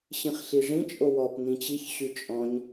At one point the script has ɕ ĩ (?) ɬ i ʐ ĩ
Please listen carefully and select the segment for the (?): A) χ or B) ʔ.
A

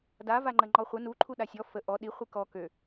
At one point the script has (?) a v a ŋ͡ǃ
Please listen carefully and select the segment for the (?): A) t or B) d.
B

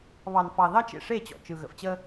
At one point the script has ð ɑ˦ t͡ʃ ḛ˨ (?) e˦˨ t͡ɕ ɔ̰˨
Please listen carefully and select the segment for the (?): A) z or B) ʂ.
B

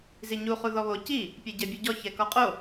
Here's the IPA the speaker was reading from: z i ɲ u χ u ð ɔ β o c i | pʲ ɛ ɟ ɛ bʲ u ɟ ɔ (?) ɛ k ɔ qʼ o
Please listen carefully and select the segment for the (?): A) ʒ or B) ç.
B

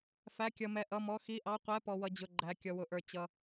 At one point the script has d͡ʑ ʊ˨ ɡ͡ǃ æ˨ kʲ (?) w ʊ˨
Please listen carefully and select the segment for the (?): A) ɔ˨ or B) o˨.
A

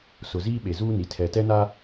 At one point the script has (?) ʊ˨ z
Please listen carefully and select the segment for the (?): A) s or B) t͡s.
A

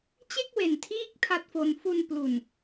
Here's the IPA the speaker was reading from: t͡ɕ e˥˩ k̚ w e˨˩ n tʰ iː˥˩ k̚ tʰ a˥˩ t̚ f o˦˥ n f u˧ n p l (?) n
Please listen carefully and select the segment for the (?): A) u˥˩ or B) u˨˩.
B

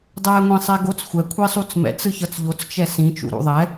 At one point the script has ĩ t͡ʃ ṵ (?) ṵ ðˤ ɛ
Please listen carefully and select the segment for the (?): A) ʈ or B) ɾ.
B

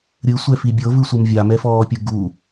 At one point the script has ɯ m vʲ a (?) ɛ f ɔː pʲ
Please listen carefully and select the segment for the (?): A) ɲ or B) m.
B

